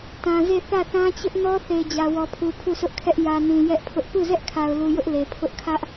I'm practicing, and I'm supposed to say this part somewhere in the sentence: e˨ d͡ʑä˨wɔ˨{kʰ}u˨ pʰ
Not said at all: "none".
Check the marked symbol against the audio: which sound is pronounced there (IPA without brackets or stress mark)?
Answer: pʰ